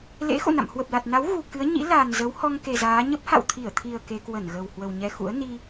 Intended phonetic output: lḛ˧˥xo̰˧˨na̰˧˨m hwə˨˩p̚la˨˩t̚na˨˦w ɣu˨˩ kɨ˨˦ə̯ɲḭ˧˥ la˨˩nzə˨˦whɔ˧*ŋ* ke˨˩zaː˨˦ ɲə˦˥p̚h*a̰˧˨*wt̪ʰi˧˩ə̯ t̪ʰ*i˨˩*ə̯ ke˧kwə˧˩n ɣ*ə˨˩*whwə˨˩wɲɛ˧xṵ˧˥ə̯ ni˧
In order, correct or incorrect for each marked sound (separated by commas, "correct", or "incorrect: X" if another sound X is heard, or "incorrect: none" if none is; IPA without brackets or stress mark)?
correct, correct, correct, correct